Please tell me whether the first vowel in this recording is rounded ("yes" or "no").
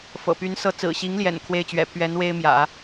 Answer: no